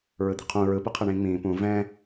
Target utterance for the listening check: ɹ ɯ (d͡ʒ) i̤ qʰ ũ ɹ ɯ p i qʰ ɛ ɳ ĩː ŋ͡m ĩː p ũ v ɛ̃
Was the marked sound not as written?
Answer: yes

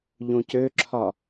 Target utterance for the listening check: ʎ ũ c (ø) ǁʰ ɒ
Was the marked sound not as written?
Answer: no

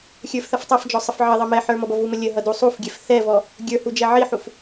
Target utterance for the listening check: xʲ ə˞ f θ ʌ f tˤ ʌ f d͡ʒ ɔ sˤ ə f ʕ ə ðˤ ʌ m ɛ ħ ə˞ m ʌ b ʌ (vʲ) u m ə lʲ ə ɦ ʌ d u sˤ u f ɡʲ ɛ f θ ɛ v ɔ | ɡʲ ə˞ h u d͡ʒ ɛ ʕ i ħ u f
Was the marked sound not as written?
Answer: yes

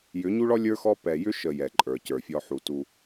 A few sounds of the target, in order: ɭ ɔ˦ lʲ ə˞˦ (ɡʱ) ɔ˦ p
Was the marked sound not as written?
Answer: yes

